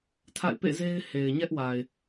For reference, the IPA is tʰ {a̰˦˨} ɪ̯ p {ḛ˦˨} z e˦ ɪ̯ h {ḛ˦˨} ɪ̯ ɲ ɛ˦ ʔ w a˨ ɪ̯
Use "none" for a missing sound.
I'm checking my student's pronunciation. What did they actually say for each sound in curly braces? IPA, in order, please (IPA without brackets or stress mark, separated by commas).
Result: a̰˦˨, ḛ˦˨, e˨